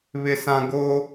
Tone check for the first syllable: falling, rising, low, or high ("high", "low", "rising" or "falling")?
high